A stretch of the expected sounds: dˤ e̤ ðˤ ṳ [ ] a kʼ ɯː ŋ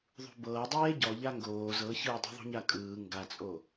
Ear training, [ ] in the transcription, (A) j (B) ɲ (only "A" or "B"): B